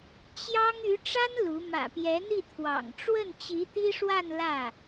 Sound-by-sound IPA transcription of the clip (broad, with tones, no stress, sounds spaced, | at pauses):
t͡ɕ j ɑ˥ ŋ y˧˥ ʈ͡ʂ a˥ n l u˧˥ m ä̰˨˩ p j ɛ˧˥ n̪ i˥˩ t̪ʰ w ɑ̰˨˩ ŋ ʈ͡ʂ w ə˥˩ n t͡ɕ i˧˥ t̪ i˥ ʂ w a˥˧ n l ä˥˩